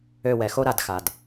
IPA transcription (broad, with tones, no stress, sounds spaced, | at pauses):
ø˦˨ w ɛ˨˩˦ x o˥ ɾ a˨˩˦ d x a˩ d